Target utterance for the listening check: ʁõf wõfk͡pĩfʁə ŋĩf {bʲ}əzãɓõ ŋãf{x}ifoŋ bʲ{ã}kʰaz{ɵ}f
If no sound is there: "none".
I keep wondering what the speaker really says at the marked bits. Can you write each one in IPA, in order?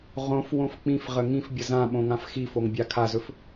bʲ, x, a, ɵ

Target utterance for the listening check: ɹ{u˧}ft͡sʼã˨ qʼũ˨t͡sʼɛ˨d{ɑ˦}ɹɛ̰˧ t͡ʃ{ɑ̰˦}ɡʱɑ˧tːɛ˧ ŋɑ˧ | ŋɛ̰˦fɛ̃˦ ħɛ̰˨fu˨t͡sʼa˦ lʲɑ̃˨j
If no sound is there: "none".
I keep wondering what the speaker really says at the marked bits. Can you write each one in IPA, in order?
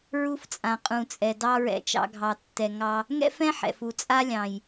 u˧, ɑ˦, ɑ̰˦

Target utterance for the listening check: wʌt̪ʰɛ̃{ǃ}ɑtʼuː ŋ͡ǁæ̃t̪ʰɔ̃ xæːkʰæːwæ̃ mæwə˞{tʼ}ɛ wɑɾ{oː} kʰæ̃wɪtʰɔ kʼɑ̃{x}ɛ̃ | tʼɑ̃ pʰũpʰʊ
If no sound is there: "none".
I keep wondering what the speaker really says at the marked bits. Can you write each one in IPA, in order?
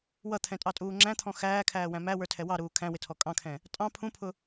tʼ, tʰ, uː, kʰ

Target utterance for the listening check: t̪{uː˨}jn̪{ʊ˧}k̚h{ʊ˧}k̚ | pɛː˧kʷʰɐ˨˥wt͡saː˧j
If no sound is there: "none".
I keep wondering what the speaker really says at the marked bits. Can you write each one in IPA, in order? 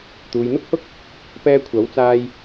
uː˨, ʊ˥, ʊ˥

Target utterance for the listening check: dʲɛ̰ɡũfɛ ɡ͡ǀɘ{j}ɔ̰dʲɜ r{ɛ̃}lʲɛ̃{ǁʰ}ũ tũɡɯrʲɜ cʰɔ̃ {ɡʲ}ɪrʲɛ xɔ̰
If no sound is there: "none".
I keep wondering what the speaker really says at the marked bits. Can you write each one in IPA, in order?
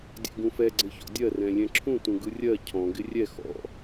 ç, ɛ̃, ǁʰ, ɡ

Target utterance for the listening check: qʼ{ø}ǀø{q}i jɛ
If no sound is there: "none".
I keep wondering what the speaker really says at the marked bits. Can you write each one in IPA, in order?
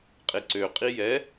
e, qʼ

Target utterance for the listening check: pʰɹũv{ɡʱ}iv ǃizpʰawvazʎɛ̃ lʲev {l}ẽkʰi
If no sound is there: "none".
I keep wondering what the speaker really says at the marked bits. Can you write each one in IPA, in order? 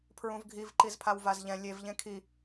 ɡʱ, ʎ

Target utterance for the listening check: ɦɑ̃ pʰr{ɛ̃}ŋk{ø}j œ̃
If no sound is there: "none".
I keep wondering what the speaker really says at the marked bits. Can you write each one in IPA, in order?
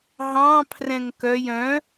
ɛ̃, œ

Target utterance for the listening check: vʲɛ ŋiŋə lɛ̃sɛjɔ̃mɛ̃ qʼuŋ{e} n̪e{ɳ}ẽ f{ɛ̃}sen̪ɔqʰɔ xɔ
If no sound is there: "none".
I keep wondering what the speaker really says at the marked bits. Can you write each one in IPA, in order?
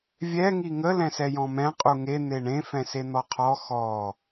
e, ɳ, ɛ̃

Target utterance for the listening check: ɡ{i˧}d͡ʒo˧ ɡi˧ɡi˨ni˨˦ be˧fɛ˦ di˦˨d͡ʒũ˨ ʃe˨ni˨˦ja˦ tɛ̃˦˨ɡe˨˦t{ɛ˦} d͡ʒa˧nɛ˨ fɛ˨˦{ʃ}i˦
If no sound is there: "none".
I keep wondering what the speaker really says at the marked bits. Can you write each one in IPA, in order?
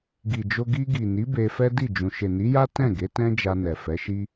i˨, ɛ̃˦, ʃ

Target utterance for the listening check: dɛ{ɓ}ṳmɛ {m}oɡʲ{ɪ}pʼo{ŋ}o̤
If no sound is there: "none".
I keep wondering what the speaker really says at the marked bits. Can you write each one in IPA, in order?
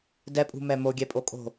pʼ, m, ɛ, kʼ

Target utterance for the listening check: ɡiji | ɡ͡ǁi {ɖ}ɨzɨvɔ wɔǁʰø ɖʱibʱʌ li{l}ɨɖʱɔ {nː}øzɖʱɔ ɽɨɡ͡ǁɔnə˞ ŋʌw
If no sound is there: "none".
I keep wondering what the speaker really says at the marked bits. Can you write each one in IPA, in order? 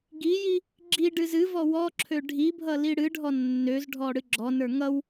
ɖ, ɽ, nː

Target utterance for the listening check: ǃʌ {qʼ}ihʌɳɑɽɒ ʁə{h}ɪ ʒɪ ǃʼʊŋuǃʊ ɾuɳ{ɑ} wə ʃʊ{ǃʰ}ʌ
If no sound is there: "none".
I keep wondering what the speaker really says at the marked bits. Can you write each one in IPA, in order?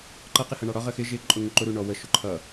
q, x, ɔ, ǃʰ

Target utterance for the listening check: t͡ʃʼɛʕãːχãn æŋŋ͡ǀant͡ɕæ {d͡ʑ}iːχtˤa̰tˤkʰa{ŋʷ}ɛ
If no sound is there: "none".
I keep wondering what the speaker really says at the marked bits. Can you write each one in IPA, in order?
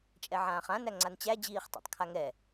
d͡ʑ, ŋ

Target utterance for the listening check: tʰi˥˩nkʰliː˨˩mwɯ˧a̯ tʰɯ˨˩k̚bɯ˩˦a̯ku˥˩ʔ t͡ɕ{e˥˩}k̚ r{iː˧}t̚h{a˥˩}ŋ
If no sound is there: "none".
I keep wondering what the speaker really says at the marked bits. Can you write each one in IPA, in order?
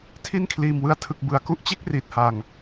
e˥˩, iː˨˩, a˨˩

